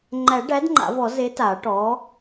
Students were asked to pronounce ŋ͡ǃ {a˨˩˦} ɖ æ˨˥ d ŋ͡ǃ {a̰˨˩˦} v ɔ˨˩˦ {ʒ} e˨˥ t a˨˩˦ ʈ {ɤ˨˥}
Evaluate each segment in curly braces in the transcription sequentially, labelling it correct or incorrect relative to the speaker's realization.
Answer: incorrect, correct, incorrect, incorrect

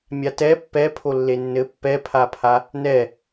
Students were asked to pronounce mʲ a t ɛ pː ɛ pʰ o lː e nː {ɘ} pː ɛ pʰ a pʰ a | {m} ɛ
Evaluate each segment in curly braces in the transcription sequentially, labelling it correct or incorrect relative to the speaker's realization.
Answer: correct, incorrect

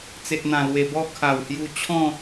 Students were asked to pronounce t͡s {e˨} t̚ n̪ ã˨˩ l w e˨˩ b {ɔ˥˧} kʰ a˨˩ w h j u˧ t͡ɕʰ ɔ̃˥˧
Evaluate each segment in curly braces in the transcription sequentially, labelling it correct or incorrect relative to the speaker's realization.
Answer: correct, correct

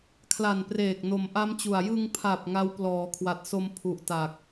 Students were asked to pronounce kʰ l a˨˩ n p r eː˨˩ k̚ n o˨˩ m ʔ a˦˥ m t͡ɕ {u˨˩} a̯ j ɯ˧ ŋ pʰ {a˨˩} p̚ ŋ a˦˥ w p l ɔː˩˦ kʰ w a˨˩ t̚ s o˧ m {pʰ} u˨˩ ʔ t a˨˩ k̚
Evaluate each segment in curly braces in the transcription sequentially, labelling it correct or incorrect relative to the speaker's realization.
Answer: correct, correct, correct

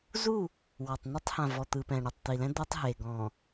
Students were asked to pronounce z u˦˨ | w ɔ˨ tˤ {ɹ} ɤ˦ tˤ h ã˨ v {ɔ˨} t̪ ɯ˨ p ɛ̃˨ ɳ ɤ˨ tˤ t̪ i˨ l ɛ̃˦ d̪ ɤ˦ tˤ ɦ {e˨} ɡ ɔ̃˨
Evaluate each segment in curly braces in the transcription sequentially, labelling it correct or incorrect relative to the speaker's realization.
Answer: incorrect, correct, correct

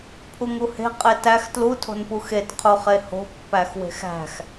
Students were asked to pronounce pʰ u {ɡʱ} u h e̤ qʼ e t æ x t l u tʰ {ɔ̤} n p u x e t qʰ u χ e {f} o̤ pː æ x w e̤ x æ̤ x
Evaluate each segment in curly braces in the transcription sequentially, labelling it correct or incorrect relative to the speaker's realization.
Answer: incorrect, incorrect, incorrect

